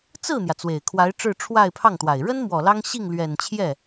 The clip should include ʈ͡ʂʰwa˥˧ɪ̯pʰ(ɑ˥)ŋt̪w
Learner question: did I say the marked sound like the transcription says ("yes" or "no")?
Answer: no